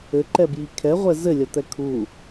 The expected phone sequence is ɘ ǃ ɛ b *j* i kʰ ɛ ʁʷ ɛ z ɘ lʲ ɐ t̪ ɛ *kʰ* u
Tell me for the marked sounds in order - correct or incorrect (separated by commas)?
correct, correct